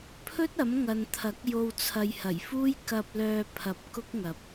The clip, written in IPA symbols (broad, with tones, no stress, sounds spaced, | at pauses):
pʰ ɵ˥ t̚ ɐ˨˥ m ŋ ɐ˨ n t̪ʰ ɐ˨˥ k̚ j o˨ w t͡sʰ ɐ˨ j h ɐ˨˩ j f uː˥ j k ɐ˧ p̚ l œː˧ pʰ ɐ˧ p̚ k ʊ˥ k̚ ŋ ɐ˨˥ p̚